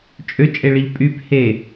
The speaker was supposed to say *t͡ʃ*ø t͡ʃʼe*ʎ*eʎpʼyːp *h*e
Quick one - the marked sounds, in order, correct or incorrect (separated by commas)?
incorrect, incorrect, correct